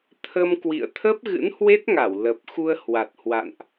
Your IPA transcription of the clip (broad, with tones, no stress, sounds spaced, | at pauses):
t̪ʰ ə˧ m k w ḭ˧˨ ə̯ t̪ʰ ə˦˥ p̚ ɣ ɨ̰˧˥ n h w e˦˥ t̚ ŋ a˧˩ w l ə˨˩ p̚ x u˧ ə̯ h w a˨˩ t̚ h w a̰˧˨ n ʔ